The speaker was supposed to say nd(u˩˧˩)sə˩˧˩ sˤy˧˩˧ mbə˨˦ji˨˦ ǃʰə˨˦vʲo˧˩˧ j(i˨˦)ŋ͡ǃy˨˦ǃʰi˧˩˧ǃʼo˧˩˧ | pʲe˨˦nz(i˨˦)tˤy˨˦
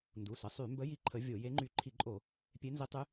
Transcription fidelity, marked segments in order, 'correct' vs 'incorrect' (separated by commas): correct, incorrect, correct